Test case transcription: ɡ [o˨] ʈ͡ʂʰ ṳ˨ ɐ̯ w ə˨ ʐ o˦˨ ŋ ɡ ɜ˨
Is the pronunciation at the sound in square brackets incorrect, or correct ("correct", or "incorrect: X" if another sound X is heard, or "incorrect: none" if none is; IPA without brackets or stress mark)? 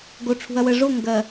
correct